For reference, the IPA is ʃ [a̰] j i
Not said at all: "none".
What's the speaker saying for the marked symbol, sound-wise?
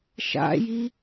a̰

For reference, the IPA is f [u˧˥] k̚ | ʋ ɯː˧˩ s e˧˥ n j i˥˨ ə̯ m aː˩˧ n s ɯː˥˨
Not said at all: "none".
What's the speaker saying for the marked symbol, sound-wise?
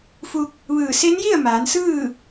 u˧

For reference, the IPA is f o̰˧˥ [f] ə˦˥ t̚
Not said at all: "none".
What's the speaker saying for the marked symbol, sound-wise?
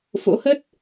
h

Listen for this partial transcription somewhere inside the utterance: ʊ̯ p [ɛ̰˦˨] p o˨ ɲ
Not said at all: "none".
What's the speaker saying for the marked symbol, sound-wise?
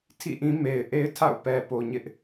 ɛ˨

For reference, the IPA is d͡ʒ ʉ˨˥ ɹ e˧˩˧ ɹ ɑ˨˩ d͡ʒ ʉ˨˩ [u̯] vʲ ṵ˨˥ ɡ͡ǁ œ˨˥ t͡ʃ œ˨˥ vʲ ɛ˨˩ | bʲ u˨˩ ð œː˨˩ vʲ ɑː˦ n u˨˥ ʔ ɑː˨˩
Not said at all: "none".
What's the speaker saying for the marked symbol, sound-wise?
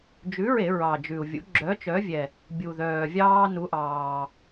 u̯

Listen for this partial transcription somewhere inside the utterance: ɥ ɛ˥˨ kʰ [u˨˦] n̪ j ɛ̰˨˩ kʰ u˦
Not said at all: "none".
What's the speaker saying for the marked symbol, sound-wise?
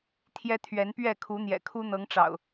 u˨˦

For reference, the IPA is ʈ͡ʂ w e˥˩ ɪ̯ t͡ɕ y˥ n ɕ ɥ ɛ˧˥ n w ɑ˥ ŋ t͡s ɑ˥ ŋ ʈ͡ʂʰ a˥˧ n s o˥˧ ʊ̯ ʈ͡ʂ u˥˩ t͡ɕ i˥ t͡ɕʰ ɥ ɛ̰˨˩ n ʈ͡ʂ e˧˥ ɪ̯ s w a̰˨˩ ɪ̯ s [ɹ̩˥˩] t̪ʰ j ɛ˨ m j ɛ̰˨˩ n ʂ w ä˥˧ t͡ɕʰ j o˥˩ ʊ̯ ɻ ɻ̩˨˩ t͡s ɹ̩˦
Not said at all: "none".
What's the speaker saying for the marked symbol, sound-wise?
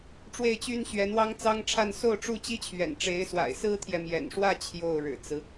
ɹ̩˥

